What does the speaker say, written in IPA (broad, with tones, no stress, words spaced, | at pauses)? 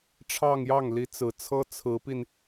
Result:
ʈ͡ʂʰɑ˥˧ŋjɑ˥˩ŋ li˧˥t͡sɹ̩˨˩t͡sʰɤ˥ t͡sʰɹ̩˧˥pi˧n